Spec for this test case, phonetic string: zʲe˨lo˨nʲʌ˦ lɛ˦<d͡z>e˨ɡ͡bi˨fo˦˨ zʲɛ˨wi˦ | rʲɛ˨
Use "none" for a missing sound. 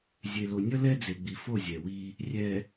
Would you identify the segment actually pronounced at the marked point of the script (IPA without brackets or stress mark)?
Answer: d͡z